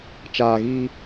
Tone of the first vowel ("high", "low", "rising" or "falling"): low